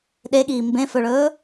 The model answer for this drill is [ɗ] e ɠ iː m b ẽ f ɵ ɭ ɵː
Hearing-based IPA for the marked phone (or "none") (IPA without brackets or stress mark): ɗ